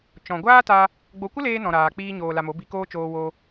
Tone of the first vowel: low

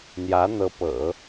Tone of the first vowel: rising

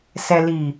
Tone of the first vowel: low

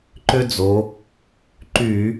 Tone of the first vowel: high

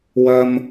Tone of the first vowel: high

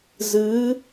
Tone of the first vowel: rising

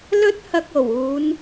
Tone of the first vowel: high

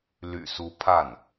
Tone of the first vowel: low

